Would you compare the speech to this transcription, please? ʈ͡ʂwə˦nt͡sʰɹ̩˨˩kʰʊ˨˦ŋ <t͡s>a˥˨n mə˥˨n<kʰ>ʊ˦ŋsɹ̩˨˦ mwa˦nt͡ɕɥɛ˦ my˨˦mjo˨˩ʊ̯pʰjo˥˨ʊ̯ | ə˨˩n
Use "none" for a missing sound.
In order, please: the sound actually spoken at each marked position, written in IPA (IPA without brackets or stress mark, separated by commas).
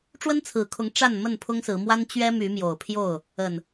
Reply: ʈ͡ʂ, pʰ